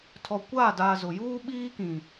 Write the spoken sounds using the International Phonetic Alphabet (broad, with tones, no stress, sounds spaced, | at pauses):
tʰ ɔ˨ kʷ aː˦˨ d aː˨ z ʊ˨ j uː˦ ɓ iː˦ k ĩ˨